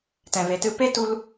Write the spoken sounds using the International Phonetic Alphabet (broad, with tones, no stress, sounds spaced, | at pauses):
t ɛ̃˨ v e˨ t ɨ˧ p e˦ t u˧ l